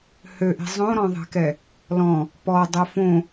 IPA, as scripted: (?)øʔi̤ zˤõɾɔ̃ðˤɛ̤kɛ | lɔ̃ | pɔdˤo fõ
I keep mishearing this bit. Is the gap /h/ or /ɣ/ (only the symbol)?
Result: h